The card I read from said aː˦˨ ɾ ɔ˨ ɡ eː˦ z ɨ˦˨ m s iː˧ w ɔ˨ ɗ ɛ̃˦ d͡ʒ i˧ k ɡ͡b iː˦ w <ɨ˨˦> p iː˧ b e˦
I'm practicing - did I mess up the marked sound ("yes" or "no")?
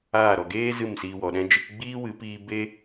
no